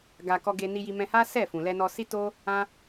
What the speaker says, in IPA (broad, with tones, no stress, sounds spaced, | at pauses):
ɡ a˧ k ɔ˦ ɡ e˦ n i˦ j i˦ m ɛ̃˧ h a˦ s ɛ˦˨ f ũ˨ l ɛ˧ n ɔ˧ s i˦ t o˦ | ã˦